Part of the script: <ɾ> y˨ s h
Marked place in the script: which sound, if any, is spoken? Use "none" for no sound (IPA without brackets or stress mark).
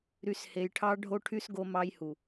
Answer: ɾ